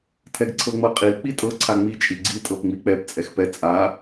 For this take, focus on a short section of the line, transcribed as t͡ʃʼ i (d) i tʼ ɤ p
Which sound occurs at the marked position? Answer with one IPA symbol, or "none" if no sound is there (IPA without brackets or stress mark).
ɡ͡ǀ